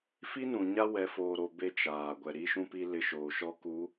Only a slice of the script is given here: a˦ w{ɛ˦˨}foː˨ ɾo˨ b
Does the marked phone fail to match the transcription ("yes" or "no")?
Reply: yes